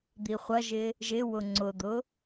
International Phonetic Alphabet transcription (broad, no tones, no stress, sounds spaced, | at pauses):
d̪ i χʷ ɐ ʒ ɪ | ʒ ɪ w ʊ ŋ͡ǀ ʊ d̪ ʊ